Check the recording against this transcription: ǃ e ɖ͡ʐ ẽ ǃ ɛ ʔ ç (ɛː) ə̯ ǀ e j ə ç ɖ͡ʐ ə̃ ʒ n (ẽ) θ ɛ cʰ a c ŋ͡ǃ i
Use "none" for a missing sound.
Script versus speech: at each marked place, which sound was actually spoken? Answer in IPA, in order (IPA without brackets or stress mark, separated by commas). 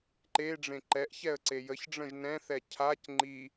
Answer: ɛ, ɛ̃